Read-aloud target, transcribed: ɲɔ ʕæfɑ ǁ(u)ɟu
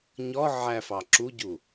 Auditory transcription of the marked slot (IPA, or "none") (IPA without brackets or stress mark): u